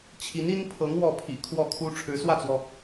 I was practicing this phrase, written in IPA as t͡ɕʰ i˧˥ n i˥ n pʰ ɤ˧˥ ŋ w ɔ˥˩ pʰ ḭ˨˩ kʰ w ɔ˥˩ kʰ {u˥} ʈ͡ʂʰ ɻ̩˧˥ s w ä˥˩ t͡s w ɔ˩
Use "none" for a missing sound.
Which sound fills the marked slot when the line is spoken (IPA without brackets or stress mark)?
u˥